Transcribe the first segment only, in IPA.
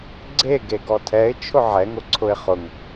ɡ͡ǀ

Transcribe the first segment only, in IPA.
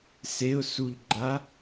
s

